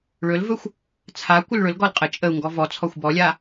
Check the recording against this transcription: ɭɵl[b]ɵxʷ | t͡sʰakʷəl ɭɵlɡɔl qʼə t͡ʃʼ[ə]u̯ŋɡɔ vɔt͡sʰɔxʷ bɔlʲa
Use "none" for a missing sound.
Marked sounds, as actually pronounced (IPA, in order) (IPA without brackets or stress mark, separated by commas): v, ə